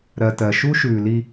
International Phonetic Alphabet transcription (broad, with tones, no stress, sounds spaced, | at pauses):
ɾ ɜ˨ t ɜ˨ ʃ u˦ ʃ ʉː˨ l i˦